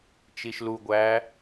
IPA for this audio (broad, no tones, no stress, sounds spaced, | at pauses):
t͡ʃ i ʃ l u ɡʷ æː